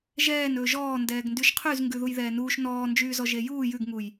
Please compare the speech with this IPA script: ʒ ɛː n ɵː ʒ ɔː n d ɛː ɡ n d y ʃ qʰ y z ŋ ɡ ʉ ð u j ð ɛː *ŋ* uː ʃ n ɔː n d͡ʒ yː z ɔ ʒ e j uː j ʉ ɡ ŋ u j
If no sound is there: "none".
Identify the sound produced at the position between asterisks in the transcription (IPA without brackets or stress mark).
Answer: n